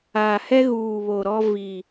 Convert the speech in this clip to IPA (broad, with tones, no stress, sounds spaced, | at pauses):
aː˨ h ɛ˦ ɣ uː˨ β o˨ ɾ ɔ˦ v i˨